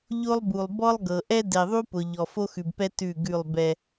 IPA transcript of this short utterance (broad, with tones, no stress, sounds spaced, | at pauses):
ʎ o˦ lˠ b u˨ lˠ b ɔ˦ lˠ ɡ ɤ˨ ʔ ɛ˦ d ɛ˨ ðˤ u˦ p ʊ˨ ʎ ɔ˨ f o˦ x ʉ˨ b p ɛ˦ t ʉ˦˨ ɡ ʉ˦˨ lˠ b ɛ˦